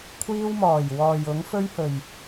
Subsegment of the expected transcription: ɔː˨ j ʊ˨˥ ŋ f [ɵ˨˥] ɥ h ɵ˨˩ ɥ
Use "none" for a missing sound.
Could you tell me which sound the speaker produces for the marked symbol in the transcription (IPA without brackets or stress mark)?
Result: ɵ˥